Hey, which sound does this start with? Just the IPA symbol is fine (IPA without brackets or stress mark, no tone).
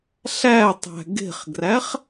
ɬ